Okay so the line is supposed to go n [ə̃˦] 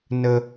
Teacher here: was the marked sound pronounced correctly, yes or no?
no